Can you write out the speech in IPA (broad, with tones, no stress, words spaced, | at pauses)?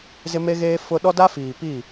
zɪ˦me˦ɣeː˦ fʊ˦ ɗɔ˦da˦fiː˨pi˦˨